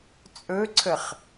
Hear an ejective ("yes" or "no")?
yes